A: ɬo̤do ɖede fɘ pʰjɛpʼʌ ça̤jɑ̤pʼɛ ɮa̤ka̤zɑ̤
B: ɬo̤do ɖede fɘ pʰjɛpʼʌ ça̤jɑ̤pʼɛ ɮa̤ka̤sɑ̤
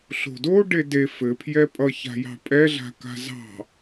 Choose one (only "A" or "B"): A